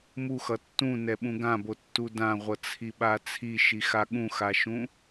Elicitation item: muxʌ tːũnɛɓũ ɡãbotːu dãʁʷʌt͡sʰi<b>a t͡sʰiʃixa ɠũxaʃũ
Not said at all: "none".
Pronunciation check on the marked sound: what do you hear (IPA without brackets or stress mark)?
ɓ